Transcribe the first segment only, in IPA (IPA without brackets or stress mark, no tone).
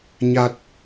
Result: ɲ